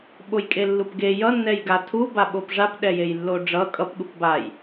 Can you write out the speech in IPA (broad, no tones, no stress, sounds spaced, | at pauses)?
ɓ o j kʼ e lː u p ɡ e j ʌ nː ɛ j ɡ a tʰ u b a ɓ o p ʐ a p ɗ ɛ j e j lː o ɖ͡ʐ ʌ kʼ ʌ p ɠ u p b a j